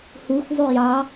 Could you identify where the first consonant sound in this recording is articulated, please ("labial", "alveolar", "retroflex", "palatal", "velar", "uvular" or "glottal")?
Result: glottal